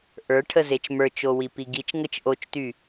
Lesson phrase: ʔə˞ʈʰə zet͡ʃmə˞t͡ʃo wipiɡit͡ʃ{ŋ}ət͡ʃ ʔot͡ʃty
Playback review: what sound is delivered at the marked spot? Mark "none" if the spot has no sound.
ŋ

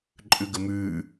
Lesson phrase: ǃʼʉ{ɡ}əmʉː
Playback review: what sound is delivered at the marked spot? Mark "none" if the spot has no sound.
ɡ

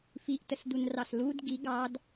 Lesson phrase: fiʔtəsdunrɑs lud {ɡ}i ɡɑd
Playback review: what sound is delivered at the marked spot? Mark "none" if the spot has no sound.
ɡ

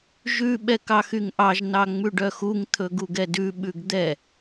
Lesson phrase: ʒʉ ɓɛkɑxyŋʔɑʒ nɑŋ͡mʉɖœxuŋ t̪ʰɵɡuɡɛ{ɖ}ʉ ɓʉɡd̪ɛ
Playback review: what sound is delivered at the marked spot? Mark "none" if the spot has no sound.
d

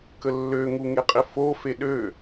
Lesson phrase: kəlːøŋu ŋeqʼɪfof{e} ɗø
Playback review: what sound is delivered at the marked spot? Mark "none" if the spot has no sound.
e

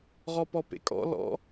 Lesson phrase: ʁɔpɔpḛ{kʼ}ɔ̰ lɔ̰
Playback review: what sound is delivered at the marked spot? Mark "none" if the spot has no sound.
kʼ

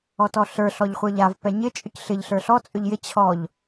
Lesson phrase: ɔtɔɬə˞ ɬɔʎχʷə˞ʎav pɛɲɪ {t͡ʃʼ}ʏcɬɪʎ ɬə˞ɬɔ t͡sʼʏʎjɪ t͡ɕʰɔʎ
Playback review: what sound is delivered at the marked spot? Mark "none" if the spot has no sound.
t͡ʃʼ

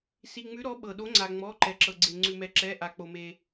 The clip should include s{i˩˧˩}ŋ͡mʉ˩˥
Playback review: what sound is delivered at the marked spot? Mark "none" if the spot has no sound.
i˩˧˩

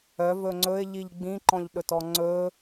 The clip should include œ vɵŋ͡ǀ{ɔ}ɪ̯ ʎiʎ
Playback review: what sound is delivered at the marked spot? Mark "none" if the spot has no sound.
ɵ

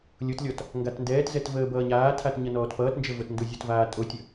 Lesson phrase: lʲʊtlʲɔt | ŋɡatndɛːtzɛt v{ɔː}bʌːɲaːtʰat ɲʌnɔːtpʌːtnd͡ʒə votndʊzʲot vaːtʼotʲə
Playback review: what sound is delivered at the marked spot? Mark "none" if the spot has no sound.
əː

